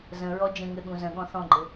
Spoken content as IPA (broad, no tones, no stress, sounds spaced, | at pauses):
z ə̃ ɹ ɔ d͡ʒ ə̃ ŋ ɘ ɠ ũ z ə̃ ɠ ɔ̃ θ ɔ̃ ɡ͡ǃ ɘ